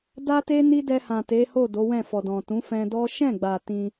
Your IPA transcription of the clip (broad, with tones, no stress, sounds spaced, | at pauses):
d a˦ t e˦ n i˦ d ɛ˧ h ã˨ t e˨˦ h o˦˨ d o˨˦ w ɛ̃˦˨ f ɔ˨ d ɔ̃˨ t ũ˨˦ f ɛ̃˧ d ɔ˦ ʃ ɛ̃˦˨ ɡ͡b a˨ t ĩ˧